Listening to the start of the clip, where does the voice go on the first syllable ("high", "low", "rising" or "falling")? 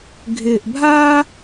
low